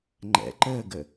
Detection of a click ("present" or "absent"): present